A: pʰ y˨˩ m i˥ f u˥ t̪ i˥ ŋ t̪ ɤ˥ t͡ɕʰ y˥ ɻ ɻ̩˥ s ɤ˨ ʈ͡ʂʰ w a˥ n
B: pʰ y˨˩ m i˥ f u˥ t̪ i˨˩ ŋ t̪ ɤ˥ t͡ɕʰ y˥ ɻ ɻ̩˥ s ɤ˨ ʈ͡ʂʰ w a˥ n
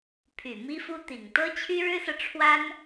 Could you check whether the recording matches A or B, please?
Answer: B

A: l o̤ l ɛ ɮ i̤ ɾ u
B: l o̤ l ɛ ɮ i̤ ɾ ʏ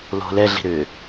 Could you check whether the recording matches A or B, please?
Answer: B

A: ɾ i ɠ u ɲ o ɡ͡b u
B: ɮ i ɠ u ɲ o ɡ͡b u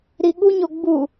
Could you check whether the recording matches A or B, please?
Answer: A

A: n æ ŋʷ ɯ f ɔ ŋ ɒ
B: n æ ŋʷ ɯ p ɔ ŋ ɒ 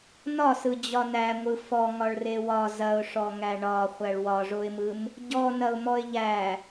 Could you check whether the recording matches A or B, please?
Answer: A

